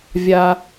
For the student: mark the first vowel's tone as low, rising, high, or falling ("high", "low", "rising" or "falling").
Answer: high